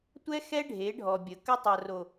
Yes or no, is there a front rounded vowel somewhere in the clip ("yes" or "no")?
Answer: no